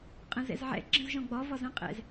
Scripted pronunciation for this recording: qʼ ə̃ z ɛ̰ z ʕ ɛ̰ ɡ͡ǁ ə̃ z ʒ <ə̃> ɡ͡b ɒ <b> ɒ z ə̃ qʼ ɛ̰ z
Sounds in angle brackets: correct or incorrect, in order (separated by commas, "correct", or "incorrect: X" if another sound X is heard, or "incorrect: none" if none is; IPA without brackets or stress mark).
incorrect: ɔ̃, incorrect: v